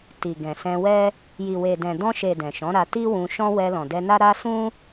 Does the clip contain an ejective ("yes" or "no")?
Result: no